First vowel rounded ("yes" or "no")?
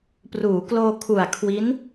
yes